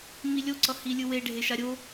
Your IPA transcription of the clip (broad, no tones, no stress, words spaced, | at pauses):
milʲoǀʌ hilʲɯwe ɖʱeʃaɾʲo